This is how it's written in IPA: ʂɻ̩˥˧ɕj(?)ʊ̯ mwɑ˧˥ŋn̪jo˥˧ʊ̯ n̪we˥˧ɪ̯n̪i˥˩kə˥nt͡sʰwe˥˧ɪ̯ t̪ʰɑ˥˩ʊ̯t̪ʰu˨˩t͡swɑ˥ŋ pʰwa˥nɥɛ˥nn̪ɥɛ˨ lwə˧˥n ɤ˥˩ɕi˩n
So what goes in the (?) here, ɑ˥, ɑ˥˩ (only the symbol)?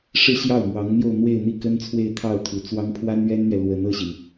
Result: ɑ˥˩